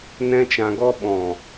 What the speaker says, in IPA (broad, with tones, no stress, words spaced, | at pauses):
nɛ̃˦t͡ʃã˧ɡɔ˦ ɓɔ̃˨